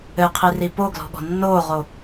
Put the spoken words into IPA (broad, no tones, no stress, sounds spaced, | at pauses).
ɘ qʰ i r i p o ɡ l ɔ̤ ɠ ɔ̤ nː oː ʁ o